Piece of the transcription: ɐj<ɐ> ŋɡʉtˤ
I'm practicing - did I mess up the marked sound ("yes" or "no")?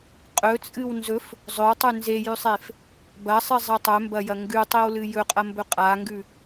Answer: no